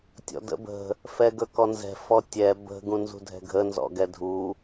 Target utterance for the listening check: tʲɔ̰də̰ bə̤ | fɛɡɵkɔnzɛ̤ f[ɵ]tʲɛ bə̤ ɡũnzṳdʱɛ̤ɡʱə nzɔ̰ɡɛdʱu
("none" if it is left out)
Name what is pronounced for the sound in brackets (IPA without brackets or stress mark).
ɔ